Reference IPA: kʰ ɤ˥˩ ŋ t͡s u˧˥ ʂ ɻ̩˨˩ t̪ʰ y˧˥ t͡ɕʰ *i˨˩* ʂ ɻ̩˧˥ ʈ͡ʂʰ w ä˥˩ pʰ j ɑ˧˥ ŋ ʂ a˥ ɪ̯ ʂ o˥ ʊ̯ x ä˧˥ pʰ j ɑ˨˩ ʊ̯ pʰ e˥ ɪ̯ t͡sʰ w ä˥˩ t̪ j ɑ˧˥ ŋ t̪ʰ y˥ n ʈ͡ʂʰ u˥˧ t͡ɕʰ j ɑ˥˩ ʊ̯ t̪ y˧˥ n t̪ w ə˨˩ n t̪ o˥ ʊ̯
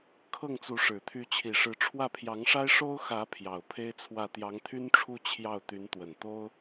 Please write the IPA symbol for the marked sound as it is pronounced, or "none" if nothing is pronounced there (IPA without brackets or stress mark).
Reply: i˨˩